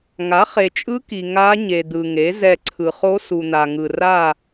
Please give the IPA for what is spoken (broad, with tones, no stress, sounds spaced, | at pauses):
ŋ a˩˥ χ e˨ t͡ʃʼ ɯ˧˥ k i˨ ŋ a˧˥ ɲ e˨ d̪ ɯ˨ ŋ e˩˥ z ɛ˦˨ ǀʰ ɯ˨ χ o˧˥ s u˨ n̪ a˨ ŋ ɯ˨ r a˦˨